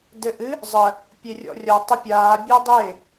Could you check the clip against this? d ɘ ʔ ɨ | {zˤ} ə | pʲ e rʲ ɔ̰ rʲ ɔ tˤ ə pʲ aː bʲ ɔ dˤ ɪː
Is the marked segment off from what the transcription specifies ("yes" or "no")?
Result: no